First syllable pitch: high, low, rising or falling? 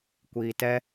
low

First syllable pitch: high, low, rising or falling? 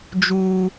high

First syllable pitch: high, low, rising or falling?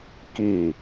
falling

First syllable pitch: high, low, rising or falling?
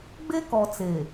high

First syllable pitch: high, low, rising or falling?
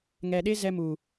low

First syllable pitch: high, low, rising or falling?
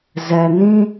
low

